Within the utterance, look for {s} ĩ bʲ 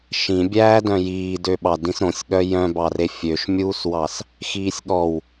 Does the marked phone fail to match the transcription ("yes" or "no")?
yes